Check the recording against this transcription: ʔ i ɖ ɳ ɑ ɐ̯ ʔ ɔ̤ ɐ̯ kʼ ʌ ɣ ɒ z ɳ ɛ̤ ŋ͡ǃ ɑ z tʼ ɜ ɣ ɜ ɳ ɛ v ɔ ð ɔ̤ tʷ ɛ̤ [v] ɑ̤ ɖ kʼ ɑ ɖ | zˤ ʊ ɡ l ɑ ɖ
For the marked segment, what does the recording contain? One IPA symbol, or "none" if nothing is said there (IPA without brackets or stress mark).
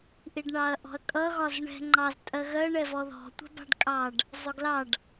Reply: b